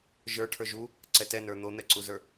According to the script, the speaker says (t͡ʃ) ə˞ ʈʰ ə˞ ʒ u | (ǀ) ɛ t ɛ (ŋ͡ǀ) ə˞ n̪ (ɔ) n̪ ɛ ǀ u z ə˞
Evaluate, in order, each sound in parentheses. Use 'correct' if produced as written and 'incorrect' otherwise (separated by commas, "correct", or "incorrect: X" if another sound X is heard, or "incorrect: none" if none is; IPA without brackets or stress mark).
incorrect: ʒ, correct, incorrect: n, incorrect: o